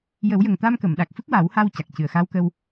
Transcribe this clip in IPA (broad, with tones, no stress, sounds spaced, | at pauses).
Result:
j ə˨˩˦ w j ə˨˩ ŋ t̪ a˧ m k ə˨˩˨ m ɗ a˨˩ k̚ f ɨ˦˥ k̚ w a˨˩˦ w h a˧ w c a˨˩ k̚ c ɨ˨˩ ə̯ x a˧˥ w k ə˧ w